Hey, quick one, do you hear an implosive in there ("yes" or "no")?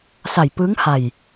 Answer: no